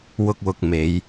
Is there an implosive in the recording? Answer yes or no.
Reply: no